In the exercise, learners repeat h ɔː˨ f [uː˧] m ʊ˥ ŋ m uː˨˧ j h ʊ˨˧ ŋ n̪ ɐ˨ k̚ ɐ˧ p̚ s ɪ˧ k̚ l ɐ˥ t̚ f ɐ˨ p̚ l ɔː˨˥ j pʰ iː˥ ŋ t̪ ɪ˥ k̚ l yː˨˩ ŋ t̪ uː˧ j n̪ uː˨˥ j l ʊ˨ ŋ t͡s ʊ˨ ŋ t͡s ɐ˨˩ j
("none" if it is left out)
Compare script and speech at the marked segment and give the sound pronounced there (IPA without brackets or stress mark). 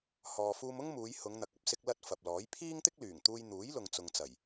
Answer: uː˧